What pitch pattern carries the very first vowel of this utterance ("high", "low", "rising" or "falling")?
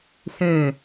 falling